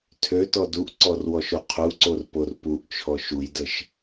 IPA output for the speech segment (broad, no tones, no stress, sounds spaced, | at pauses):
tʰ ø t ɔ d u ʔ ǀ ɔ r w ɔ ʃ o qʰ u ǀ o r p o r p u ʔ t͡ʃʰ ɔ ʃ u j d ə ʃ